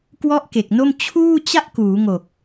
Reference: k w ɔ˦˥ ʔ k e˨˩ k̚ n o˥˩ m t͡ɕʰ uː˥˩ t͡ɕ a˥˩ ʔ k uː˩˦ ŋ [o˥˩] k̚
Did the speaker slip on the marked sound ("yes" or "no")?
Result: yes